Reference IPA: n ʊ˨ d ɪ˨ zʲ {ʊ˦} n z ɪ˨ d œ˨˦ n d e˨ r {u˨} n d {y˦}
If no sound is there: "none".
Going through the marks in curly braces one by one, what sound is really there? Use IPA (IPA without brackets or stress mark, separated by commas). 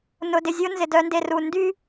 ʊ˦, u˨, y˦